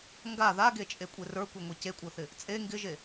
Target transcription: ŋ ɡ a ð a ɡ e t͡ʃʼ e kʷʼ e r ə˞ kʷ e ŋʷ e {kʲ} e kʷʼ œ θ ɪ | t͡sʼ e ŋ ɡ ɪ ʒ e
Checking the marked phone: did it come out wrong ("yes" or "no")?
yes